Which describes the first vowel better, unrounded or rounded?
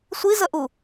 unrounded